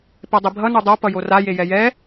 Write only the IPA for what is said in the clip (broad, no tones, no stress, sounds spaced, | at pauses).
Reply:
p ɛ dˤ i bʱ ʌ n u dˤ o p ʌ j o r a j e j ɛ j ɛ